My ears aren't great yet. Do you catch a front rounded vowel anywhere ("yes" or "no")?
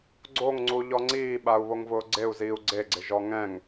no